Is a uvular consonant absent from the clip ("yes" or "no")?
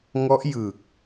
yes